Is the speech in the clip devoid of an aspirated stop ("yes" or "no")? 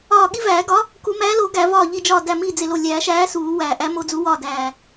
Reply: yes